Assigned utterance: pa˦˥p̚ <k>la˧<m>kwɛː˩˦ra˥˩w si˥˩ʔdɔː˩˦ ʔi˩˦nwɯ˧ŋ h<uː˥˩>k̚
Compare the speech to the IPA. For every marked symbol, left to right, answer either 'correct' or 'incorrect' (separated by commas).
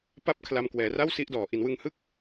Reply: incorrect, correct, incorrect